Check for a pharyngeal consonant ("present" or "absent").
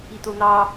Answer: absent